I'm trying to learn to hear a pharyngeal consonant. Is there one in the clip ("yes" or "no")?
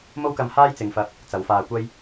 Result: no